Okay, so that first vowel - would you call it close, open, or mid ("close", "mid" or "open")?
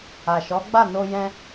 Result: open